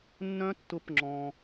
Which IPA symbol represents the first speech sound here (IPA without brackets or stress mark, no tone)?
nː